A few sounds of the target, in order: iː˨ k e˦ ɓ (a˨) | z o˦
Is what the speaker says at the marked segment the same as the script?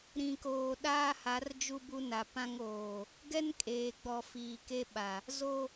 yes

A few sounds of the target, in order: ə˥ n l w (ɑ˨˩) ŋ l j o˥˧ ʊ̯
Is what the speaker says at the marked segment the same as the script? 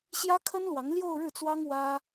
no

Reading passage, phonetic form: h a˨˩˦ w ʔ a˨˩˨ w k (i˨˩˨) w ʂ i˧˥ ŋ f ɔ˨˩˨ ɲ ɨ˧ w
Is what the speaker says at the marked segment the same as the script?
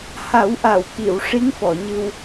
yes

